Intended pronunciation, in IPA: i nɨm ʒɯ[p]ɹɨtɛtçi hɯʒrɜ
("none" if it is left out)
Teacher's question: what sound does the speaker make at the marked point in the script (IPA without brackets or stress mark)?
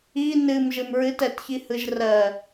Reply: m